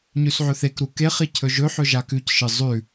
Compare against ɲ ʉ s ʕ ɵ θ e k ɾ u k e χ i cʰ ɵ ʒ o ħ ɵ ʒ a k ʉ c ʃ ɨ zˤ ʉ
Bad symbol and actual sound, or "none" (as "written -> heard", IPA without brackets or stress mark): o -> ɵ